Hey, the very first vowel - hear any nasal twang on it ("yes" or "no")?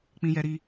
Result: yes